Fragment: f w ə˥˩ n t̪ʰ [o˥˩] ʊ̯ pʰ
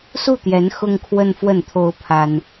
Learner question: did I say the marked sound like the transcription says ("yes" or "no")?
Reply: no